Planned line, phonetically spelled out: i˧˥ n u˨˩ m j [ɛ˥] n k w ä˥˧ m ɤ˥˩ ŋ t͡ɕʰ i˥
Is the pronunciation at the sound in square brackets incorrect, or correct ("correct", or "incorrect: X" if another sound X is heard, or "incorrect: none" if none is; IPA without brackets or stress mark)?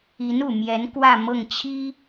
incorrect: ɛ˧˥